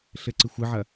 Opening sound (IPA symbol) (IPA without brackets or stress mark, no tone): ɬ